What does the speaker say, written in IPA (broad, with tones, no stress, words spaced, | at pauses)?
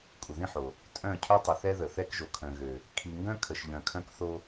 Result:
kʷʼə˨ðĩ˦ħo˨ | tʼœ̃˦˨ cʰœ˦tˤə˨ θɛ˦ðə˨ θɛ˦kʒo˨kʰœ̃˨ɣø˨ | kʰi˨ŋɡœ̃˦kʰə˨ʃ ʎœ̃˨kʰœ̃˦kθo˦